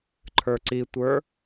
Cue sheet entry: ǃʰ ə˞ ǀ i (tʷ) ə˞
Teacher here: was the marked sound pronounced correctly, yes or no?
yes